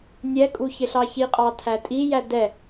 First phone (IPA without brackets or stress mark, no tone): nʲ